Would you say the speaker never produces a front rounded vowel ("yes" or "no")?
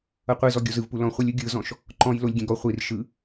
yes